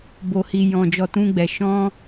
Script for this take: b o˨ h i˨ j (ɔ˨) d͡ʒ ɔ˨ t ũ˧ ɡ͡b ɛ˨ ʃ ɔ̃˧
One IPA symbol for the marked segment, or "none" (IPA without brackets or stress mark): ɔ̃˨